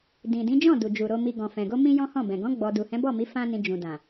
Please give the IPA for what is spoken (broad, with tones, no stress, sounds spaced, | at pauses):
d ĩ˨ d ĩ˨˦ d͡ʒ ɔ̃˦˨ d u˨ d͡ʒ u˨ ɾ o˨ m i˨ ɡ ɔ̃˨ f ɛ̃˨ ɡ o˧ m ĩ˦ j ɔ̃˦ h ɔ̃˦˨ b ɛ̃˨ ɡ ɔ̃˨˦ ɡ͡b ɔ˧ d u˨ h ɛ̃˨˦ b ɔ˦˨ m i˨˦ f ã˦ n ĩ˧ d͡ʒ ũ˨ d ã˨